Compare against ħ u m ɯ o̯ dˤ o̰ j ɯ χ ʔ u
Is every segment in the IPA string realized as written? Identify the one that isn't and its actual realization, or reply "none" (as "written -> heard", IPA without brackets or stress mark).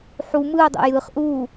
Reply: none